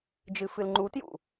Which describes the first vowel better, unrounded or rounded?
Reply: unrounded